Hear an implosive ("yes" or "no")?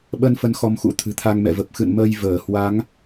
yes